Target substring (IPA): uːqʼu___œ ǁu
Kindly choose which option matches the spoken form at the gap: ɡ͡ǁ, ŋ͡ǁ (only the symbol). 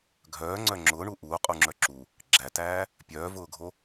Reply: ŋ͡ǁ